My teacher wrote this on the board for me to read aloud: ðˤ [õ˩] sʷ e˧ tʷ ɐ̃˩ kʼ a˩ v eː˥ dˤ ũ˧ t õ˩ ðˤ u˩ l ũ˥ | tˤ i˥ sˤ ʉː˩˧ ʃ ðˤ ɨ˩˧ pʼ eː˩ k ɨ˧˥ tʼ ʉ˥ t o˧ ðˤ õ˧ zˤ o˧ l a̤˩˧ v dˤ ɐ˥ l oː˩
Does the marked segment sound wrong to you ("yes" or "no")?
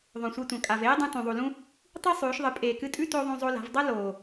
no